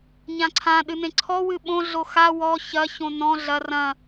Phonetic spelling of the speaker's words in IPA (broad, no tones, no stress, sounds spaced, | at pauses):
ɲ ã ǀʰ ã ɗ ɨ n ẽ ǀʰ ɔ w ɨ ɓ õ ɮ o x a w ɔ ç ɐ ç õ n ɔ̃ ɮ ɐ r ɐ̃